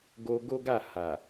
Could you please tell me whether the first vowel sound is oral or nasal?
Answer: oral